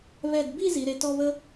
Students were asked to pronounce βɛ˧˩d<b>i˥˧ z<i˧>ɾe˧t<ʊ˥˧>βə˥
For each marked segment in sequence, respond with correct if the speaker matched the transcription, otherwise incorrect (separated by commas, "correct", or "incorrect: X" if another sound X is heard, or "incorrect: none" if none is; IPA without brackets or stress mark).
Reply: correct, incorrect: i˩˧, incorrect: ɔ˥˧